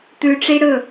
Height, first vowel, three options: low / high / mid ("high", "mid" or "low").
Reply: high